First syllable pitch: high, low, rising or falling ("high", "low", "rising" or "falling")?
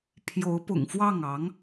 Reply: rising